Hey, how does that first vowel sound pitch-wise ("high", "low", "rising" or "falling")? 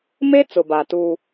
high